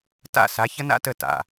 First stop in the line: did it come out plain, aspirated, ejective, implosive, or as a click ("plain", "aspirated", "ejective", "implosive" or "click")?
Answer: plain